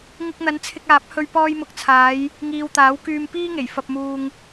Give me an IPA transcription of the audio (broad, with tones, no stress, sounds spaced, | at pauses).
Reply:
ŋ ɪ˧ k̚ n̪ ɐ˨˧ n t͡sʰ ɪ˧ k̚ aː˨˥ p̚ h ɵ˧ ɥ p ɔː˧ j m ʊ˨ k̚ t͡sʰ aː˨˧ j | ŋ iː˨ w t̪ aː˨˥ w k yː˧ m p iː˥ ŋ e˨˩ j f ɐ˧ p̚ m uː˧ ŋ